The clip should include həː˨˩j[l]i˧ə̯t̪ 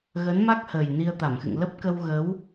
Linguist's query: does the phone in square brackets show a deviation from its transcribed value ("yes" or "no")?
yes